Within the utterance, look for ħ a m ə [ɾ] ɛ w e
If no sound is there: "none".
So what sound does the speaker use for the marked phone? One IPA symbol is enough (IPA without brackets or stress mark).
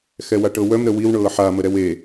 ɾ